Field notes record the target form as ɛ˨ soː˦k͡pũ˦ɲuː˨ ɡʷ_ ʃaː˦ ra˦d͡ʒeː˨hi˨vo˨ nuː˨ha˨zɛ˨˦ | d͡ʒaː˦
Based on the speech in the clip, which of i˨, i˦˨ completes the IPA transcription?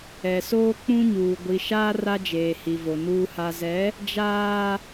i˨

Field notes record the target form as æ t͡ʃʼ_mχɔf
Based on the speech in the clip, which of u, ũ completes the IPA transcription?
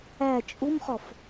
u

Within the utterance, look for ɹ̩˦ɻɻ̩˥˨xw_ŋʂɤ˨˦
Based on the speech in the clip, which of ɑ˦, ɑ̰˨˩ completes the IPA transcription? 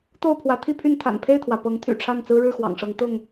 ɑ̰˨˩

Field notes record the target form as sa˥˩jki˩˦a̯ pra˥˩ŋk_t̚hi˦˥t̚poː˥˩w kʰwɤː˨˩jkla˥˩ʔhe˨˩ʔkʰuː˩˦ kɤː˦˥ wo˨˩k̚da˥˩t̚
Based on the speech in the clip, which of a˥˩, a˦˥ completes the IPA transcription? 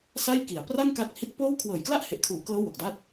a˦˥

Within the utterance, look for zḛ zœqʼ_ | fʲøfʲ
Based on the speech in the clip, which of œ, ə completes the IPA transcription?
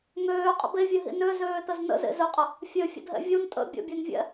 ə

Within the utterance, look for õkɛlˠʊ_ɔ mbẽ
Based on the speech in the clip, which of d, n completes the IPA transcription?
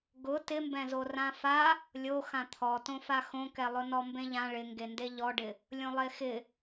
n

